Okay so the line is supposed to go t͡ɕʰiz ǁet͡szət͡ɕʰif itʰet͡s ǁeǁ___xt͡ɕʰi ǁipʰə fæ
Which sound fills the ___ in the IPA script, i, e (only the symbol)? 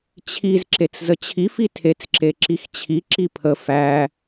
i